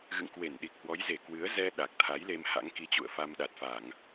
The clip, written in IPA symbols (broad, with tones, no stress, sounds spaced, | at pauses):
ɣ ɨ̰˧˨ ŋ k w e˧˩ n ɗ i˨˩ k̚ h w ɔ˨˦ j z e˧˩ k w ɨ˨˦ ə̯ z ɛ˧ ɗ a˨˩ k̚ t̪ʰ a˨˦ j l e˧ m h a̰˧˥ ŋ k i˧ t͡ɕ ṵ˧˨ ə̯ f a˧ m ɗ a˨˩ t̚ f a˧˩˨ ŋ